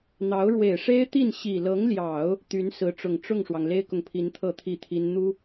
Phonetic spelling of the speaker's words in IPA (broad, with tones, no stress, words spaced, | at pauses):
n̪ɑ˧˥ʊ̯ ɻwe˨˩ɪ̯ʂe˥ɪ̯t̪i˥˩n ɕi˨˩lɤ˧˥ŋljɑ˨˩˦ʊ̯ | t̪y˧˥nsɹ̩˧˥ʈ͡ʂʊ˨˩ŋ ʈ͡ʂʊ˥˩ŋʂwɑ˩ŋ le˥ɪ̯kʊ˨ŋpʰi˧˥nt̪ʰɤ˥˧ t̪ʰi˥˩t̪ʰi˥n n̪u˥